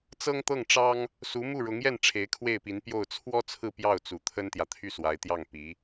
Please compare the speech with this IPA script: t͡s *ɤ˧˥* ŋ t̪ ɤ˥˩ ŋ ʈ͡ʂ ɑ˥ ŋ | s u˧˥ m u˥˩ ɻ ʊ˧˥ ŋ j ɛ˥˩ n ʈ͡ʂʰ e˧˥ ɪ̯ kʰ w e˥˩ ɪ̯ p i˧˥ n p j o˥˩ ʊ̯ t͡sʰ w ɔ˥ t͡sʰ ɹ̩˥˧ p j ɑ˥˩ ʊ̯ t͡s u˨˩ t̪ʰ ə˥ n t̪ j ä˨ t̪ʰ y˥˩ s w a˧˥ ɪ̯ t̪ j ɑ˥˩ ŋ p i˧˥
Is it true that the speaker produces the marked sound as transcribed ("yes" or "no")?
no